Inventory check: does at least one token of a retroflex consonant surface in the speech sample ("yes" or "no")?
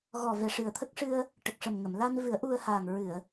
yes